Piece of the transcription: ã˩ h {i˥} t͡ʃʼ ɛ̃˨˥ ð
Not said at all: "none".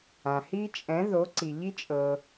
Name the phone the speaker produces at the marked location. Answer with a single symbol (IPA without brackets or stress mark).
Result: i˥